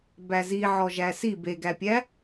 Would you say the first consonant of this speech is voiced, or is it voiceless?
voiced